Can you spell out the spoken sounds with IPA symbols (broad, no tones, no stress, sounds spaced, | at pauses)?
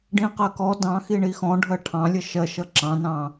ɖ ĩ q ɜ k ɔ d ɑ̃ x i ɳ i x ɔ̃ ɖʱ ɜ ʈʰ ɑ̃ lʲ ə ʃ ɜ ʃ ʌ ǁ ɑ̃ n ɑ̃